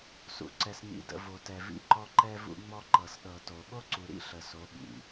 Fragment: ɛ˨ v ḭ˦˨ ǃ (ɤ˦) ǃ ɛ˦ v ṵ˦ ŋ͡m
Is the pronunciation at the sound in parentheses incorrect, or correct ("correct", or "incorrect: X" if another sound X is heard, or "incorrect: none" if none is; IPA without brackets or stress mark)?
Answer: incorrect: ɔ˦